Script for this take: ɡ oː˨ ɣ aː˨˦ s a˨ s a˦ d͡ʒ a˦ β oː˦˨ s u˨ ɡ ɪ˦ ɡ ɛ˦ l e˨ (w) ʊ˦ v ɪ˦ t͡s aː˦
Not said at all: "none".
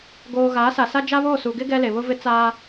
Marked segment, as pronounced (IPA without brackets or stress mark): β